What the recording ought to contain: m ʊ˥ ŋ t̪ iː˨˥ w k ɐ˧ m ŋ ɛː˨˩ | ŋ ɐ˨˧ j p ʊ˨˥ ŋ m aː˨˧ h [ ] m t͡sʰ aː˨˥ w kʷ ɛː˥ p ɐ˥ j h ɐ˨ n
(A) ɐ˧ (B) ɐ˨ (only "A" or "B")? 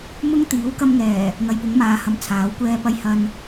B